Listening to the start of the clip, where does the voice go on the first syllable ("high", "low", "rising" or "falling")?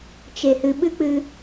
low